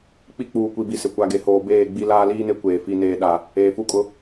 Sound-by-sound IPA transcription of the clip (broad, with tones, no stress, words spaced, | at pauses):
k͡pi˦ k͡puː˨kʷi˨bi˨sɪ˨ kʷa˨ɡe˨hoː˨beː˦˨ ɡ͡bi˦ laː˦liː˦ne˦ kʷeː˨fi˦neː˦ ɗa˦ | eː˨fu˦kʼʊ˦